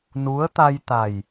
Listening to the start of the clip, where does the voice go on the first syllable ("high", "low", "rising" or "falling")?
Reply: rising